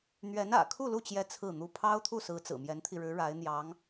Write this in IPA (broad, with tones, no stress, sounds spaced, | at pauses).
n̪ ɥ ɛ˧˥ n ä̰˨˩ kʰ u˥˧ l u˥˩ t͡ɕ j ɛ˧˥ t͡sʰ ɹ̩˥˩ n̪ u˥ pʰ ɑ˥ ʊ̯ t̪ʰ u˥˩ s ɹ̩˧˥ t͡s ɹ̩˨˩ m j ɛ˧˥ n t̪ʰ i˧ ɻ ɻ̩˧˥ ɻ a˧˥ ɪ̯ n̪ j ɑ˧˥ ŋ